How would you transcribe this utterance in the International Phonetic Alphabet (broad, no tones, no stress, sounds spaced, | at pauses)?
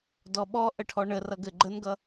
d ɔ ɓ ɔ ʔ ə ʈʰ ɔ ɳ ə r ʌ ɡ ɘ ɡ͡ǃ ə n ɡ ʌ